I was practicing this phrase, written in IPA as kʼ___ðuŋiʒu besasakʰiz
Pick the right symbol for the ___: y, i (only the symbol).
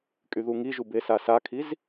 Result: y